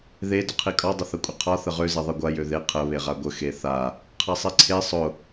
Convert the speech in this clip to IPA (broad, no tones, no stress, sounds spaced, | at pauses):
ð e d ʊ qʰ i kʼ ɒ dˤ ə θ ɐ kʷʼ ə qʰ ɒ θ ə ʁ ø z e ðˤ i ɡʷ a j ø ð e qʰ ə β e ʁ a ɡʷ ə x e θ a | qʰ a sˤ e ǀʰ e sˤ ʊ